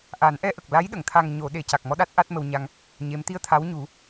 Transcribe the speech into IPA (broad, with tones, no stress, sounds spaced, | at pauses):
ʔ a˨˩˦ n ʔ ɛ˧ ʔ ə˨˩ k̚ l a˧˥ j ɗ ə˨˩˨ ŋ t̪ʰ a˨˩ ŋ ɲ o˨˩˨ ɗ e˨˩˨ c a˨˩ k̚ m ɔ˧ ɗ a˦˥ t̚ ʔ a˦˥ t̚ m ə˧ w ɲ a˧ ŋ | ɲ e˧˥ m t̪ i˧ ə̯ t̪ʰ a˧˥ w ɲ u˨˩˦